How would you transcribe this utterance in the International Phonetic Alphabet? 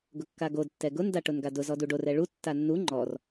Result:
ɡ ʊ kː a ɡ o d tː ɛ ɡ ʊ n d a ʈ ʊ n ɡ a d ʊ z ɔ d u ɖ o r ɛ ɭ u tː a nː u ŋ͡ǃ ɔ r

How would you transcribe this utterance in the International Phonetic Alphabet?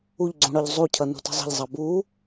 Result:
u ʎ ɡ͡ǀ ũ ɽ ɒ ʎ zˤ u cʰ ʌ n ṳ t ə̤ zˤ ə̤ ʎ zˤ ɑ b u

